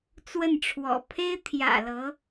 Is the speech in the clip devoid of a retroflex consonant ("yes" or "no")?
no